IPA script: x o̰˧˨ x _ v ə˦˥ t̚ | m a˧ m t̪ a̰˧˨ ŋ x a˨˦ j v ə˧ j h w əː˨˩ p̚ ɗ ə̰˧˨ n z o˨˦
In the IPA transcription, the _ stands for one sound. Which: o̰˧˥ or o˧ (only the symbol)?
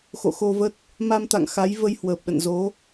o˧